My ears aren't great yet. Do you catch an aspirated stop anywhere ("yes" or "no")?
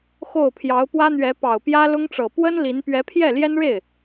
yes